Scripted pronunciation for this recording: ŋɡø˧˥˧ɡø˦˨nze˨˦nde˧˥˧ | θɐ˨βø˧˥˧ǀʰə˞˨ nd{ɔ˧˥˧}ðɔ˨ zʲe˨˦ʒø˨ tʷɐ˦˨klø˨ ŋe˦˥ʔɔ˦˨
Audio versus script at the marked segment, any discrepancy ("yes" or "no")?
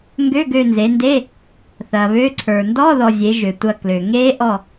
no